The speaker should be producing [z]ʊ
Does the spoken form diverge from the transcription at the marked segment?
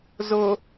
no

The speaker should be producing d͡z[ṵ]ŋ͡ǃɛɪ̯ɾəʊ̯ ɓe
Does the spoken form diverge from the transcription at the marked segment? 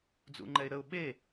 no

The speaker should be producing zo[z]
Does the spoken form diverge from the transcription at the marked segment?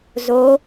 yes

